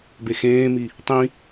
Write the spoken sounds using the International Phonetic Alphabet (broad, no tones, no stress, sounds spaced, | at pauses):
b e x ẽː m i | tˤ ĩ